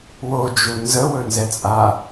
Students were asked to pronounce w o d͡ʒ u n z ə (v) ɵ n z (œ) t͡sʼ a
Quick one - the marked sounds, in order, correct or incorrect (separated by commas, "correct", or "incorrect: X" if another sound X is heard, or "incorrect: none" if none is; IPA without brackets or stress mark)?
incorrect: w, incorrect: ɛ